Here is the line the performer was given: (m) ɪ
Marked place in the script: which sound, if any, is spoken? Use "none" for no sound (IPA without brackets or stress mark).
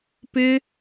p